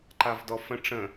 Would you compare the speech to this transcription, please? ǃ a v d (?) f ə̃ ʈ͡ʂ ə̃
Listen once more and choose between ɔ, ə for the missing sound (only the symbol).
ɔ